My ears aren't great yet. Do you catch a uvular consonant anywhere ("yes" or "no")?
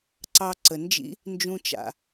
no